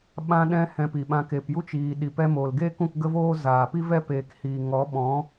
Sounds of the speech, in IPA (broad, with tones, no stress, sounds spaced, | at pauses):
ɓ ã˧ ɗ ɛ̃˧ h ɛ̃˧ p i˨ ɓ ã˧ k e˨ p j u˦ t͡ʃ iː˨ ɗ i˨ p ɛ˧ m oː˨ l ɡ eː˦ k ũ˦˨ k ɡ ə˦ v oː˦ z aː˨ p i˦ v ɛ˦ p eː˧ k h iː˨ ŋ ɔ˨˦ ɓ ɔ̃˨˦